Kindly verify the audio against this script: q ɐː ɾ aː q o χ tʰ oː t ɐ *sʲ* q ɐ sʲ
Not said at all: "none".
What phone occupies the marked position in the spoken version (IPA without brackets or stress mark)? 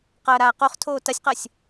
sʲ